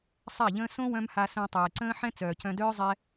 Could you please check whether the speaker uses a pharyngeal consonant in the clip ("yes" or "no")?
yes